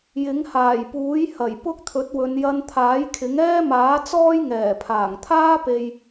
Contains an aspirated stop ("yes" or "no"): yes